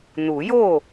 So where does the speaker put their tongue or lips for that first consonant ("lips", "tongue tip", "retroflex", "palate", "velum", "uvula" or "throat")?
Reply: tongue tip